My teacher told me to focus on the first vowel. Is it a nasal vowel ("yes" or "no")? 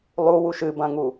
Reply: no